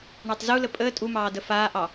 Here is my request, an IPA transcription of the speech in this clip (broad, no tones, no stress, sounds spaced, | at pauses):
ɳ a tˤ z u l ə pʼ əː tʼ u m ɑː d ə f aː ʔ ɑ